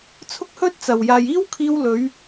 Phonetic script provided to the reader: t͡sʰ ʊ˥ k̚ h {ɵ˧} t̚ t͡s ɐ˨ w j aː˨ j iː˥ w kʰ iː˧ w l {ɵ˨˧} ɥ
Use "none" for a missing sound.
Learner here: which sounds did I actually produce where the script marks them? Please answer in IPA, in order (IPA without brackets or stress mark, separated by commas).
ɵ˥, ɵ˨˧